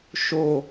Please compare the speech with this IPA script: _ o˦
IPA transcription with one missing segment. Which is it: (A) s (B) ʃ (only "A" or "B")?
B